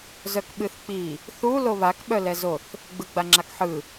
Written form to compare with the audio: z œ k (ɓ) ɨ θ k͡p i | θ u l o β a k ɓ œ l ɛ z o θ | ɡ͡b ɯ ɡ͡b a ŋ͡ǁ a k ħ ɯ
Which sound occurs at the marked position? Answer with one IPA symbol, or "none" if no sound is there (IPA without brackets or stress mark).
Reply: ɓ